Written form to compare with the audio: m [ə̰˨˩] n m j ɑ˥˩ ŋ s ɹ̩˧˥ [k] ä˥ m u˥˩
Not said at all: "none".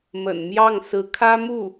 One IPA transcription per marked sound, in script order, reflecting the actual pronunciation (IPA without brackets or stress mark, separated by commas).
ə̰˨˩, kʰ